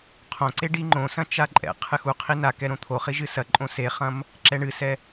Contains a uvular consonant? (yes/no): yes